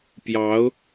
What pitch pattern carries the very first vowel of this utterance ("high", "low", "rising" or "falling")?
rising